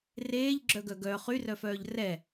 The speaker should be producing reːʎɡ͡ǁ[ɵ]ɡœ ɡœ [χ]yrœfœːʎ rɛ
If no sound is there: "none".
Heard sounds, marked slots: œ, χ

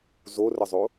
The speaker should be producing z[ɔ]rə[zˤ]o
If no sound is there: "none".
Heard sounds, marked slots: o, zˤ

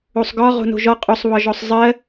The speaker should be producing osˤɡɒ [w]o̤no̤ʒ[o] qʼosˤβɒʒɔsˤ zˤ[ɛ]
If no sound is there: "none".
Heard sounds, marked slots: ʁ, ɔ, ɜ

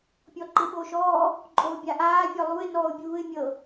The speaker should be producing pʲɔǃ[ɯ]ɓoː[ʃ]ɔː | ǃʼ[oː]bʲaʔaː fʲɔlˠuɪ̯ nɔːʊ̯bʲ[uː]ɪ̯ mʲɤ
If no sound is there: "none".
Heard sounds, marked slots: ɯ, ʃ, oː, uː

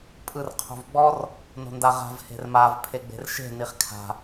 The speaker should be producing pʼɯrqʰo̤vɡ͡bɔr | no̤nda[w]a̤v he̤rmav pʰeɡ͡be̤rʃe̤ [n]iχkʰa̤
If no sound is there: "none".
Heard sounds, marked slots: ʁ, n

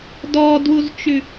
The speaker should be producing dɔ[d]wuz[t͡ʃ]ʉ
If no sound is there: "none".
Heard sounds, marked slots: d, t͡ʃ

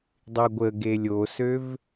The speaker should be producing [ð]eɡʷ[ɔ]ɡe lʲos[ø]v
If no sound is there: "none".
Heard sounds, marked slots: dˤ, ə, ø

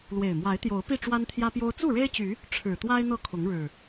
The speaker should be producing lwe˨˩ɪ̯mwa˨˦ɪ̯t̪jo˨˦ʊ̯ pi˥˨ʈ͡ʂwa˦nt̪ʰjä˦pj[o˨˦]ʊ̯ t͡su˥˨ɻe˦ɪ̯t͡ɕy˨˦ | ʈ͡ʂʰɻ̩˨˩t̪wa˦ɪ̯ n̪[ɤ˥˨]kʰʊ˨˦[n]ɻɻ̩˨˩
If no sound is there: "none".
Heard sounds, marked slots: o˦, ɤ˥˨, ŋ

